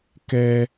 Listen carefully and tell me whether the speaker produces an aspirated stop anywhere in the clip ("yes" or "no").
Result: no